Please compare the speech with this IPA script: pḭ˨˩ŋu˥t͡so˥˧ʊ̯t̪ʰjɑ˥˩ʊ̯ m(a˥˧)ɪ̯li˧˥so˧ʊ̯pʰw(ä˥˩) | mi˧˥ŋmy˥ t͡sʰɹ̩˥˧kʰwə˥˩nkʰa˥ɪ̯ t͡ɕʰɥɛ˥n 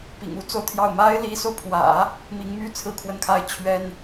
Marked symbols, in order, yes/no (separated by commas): no, no